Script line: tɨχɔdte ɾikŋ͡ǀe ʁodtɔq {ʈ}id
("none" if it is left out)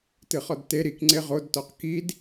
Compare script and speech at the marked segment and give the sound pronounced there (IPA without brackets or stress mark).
k